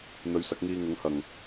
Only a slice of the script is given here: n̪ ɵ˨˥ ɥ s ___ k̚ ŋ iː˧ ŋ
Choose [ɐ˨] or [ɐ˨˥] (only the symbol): ɐ˨˥